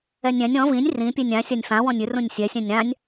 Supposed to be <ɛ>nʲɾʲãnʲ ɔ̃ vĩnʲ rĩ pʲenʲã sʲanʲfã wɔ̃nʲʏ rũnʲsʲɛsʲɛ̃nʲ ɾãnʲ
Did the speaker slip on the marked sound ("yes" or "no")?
no